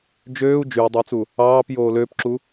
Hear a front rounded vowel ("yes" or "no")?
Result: yes